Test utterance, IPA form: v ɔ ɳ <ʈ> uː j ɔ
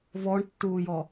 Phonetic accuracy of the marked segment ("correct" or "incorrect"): incorrect